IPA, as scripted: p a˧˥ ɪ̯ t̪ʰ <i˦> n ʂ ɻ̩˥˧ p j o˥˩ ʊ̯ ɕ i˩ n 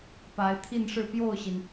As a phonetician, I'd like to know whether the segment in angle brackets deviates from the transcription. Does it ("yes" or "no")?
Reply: yes